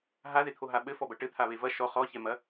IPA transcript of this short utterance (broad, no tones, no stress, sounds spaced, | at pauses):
ɦ a ð e t̪ʰ o ɦ a ɓ ɘ f ɔ b ɐ ʈ ɘ t̪ʰ a β e v ɐ ʃ ɔ χ ɔ ç ɛ m ɐ